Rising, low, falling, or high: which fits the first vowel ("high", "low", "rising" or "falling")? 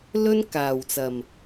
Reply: high